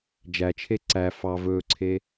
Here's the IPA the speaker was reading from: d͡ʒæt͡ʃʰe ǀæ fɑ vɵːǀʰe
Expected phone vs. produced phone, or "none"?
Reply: none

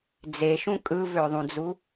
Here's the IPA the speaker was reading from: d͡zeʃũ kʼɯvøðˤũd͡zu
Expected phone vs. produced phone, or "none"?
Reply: none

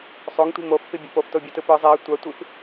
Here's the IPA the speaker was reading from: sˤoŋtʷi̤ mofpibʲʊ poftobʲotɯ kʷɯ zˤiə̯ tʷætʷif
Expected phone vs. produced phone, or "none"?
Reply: kʷ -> p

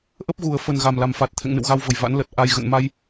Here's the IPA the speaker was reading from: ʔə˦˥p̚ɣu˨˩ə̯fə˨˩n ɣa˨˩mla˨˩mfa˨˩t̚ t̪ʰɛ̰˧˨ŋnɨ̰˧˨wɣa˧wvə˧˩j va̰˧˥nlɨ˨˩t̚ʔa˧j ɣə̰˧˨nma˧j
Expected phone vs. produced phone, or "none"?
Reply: ɨ˨˩ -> ə˨˩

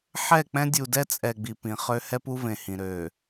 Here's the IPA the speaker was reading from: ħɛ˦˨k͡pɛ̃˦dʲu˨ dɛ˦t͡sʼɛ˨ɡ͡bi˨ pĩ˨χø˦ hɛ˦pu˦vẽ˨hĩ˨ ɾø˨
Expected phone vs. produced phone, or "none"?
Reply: none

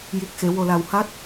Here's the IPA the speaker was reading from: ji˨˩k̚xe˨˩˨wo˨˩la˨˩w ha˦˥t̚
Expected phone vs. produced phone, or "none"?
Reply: none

